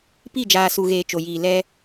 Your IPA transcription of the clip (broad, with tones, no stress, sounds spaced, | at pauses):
p i˦˨ d͡ʒ aː˨ s u˨ ɣ eː˨ t͡ʃ o˨ j iː˨ l ɛ˦